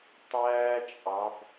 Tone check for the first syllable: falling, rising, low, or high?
high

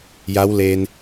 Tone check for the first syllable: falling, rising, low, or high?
rising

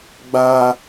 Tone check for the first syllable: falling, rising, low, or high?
high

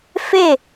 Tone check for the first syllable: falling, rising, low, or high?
falling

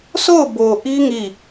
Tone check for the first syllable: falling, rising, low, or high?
falling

